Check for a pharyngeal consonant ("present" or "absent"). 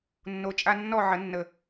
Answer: present